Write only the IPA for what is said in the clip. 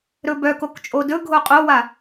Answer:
ɾɵbœkok t͡ʃʼodɵɡʱo qʼowa

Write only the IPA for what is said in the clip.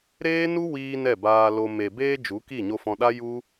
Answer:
ɾeː˦nu˦wiː˧ nɛ˦˨baː˧lo˧ me˨beː˧ d͡ʒu˨˦ki˦˨ɲo˧ fɔ̃˧ɗa˦ ju˦

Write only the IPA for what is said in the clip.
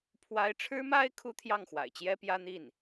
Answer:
pʰwa˧˥ɪ̯ʈ͡ʂʰɻ̩˥ma˥ɪ̯ kʰu˥t̪ʰjɑ˥˩ŋ xwa̰˨˩ɪ̯t͡ɕjɛ˥pjä˥n̪i˥˩n

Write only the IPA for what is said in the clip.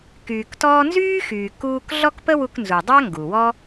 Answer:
kyː˩ktɔː˧nzyː˥xyː˩ kuː˧k ɮɔ˥kpə˥wu˧knzu˩ dˤa˥ŋɡu˩wɔ˥

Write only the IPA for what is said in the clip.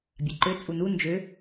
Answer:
bʲaǃø t͡sʼunu nd͡ʒø

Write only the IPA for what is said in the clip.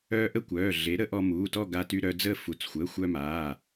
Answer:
œː˧ʔə˥˧ kʷœː˩˧˩ɮe˩˥ɾə˩˥ ʔɔ˧muː˩˧˩tɔ˥˧ ɡa˧ty˧ɾœ˧d͡zəː˥˧ fu˩˧˩t͡sxʷəː˩˧˩xʷœ˧maː˩˧˩

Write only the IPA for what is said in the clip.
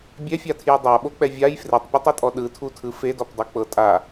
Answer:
bʲɛfʲatʰjɯ dˤaɓok͡pɛ vʲaj fretˤpʲotˤɤtʼɔ ɗɯtʰutʰɯ fedɔpdˤok͡pɤ tʼa

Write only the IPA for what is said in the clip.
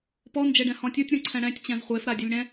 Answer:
pɔ nd͡ʒeɖɛ̃hɔ̃tʲutʲ ɾũǀʰɛ̃ɽɛ̃tʲ t͡ɕɛ̃zχʷef ɾadʲelʲɽɛ̃

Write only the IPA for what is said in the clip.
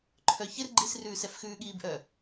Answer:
ǃʰœçɪr ɡ͡ǃisrʉːs ɛfxʉːɠiːbʔœ

